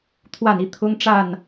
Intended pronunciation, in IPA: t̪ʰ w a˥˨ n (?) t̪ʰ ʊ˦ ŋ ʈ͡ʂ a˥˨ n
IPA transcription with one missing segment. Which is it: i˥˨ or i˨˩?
i˥˨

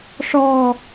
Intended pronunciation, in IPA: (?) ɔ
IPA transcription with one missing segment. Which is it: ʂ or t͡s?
ʂ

